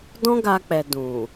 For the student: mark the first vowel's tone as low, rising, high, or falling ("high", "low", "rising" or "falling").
high